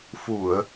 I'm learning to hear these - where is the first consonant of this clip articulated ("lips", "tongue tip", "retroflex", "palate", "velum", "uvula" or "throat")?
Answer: lips